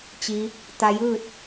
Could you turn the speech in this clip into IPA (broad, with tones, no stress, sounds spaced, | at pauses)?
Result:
t͡ɕ i˧˥ | t̪ a˧ j ɯː˥˨ t̚